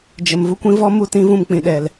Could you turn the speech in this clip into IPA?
d͡ʒə˨m vu˧kʷĩ˧ vɔ˦mu˦˨ tĩ˦vũ˦˨mk͡pĩ˨ɗɛ˨l

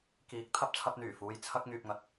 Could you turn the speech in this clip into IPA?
kiː˨k̚ t̪ʰɐ˥p̚t͡sʰɐ˧p̚n̪yː˨˩fuː˨˧j t͡sʰɐ˧k̚ ŋyː˨p̚ŋɐ˨t̚

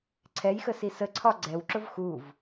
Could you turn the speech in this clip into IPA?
ǀʰɛjxəsi səǀʰɒ ɡ͡ǀɛwǁʊv xuv

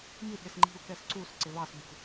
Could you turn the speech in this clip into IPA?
mi ɗɪsŋ͡ǃi̤u̯ kɛsǀus ǀɪβɑs bṳ

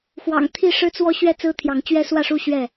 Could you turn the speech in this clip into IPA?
xwɑ̰˨˩ŋ t̪ʰi˥˨ʂɻ̩˦t͡swɔ˦ɕɥɛ˥˨ t͡sɹ̩˦t̪ʰjɑ˨˦ŋt͡ɕɥɛ˦ swä˥˨ʂu˥˨ ɕɥɛ˥˨

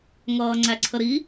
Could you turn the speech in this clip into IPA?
ŋʌːŋ͡ǀæǀʰəɾi

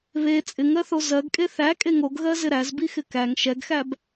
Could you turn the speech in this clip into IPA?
βe t͡sʼɪŋɜθo zɜɡkʼe θækʼeŋ oɡɣɜzɪ ɾæzbixɪ kæŋ ʃɛɡxæb

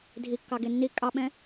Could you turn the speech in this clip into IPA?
dʱikːɑ ɡenːi kʼɑɓɛ̃

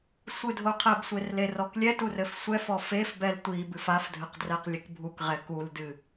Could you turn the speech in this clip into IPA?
sʷɨdʱoqʰɛbsʷer lerɔklʲɛtur ɘfsʷɛfɔ fefbɛl tʷibɨf afdʱɘq drɛqlʲɨkbʱukʁɛ kuldɨ

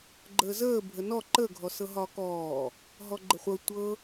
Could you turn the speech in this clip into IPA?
ɡ͡ǃəːzəː bʱənɔ ǃə ɡʱɔsɤɦɒːkɔː | ɦɔɡ͡ǃəχʷɤ tʷɤ

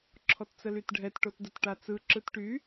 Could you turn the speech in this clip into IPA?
ǁʰɔtt͡səlytɖʱɛt ʈotdətʈat͡sɯ ǁɯtʈy

